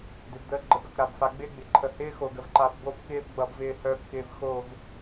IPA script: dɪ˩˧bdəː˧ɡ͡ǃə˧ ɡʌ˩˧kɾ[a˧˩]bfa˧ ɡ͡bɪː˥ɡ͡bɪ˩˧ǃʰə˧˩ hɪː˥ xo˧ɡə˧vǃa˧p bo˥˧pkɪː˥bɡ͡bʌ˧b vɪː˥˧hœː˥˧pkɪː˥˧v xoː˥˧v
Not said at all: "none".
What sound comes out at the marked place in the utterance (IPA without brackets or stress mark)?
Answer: a˧˩